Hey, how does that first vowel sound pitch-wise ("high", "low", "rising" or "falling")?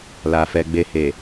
low